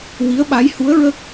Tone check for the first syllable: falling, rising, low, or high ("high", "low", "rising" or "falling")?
rising